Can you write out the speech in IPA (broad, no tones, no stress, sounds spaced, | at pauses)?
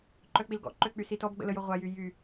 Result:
ǃ œ k͡p i l ɡ ɔ̰ ǃ ø k͡p y s i t ɔ b ɡ͡b ə̰ l ə j o ʁʷ a j y j y